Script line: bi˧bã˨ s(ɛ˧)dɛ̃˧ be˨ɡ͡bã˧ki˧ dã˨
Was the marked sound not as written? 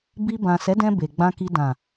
yes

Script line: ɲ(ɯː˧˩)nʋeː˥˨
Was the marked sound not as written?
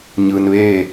yes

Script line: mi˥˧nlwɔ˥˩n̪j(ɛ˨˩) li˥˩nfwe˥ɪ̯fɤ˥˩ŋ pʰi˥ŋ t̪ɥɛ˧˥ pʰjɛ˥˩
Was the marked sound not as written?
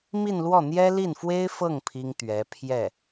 yes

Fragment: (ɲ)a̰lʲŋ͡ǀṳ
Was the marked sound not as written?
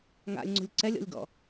yes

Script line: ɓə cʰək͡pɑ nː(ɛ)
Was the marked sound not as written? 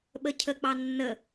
yes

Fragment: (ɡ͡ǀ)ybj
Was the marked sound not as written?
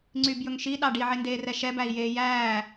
yes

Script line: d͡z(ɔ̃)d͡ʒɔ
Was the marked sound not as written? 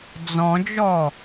no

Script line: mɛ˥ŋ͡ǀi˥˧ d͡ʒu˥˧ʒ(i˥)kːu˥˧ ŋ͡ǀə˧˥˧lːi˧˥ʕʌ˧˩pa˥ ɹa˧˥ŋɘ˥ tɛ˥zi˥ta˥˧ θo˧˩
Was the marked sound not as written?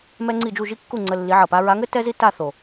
no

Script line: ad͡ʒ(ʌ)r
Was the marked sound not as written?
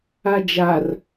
yes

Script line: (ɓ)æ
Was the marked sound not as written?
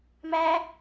yes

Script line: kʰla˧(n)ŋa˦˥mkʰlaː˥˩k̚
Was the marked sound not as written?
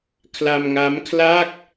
yes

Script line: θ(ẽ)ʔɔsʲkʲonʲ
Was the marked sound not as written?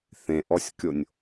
no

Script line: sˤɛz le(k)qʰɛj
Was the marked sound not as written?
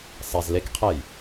no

